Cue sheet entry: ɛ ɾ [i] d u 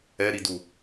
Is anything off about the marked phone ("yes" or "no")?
no